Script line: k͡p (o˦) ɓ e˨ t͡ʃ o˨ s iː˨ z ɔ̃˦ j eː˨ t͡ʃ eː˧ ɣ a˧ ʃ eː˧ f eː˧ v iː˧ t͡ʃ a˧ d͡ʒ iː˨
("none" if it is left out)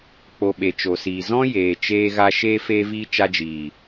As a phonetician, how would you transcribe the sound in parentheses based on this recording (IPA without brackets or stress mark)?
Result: o˧